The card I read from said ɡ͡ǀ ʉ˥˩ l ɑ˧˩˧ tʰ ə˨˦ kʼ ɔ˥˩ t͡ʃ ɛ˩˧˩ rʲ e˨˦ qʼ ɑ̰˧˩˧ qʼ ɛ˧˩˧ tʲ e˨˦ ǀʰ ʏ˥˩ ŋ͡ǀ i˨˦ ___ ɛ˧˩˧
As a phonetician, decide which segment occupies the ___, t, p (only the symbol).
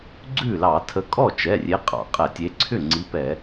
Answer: p